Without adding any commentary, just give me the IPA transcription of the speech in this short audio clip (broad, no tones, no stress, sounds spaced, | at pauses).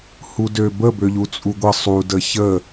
h u d ø b ə b ø ʎ u t͡sʼ u ɡʷ ə sˤ u d ə ç ə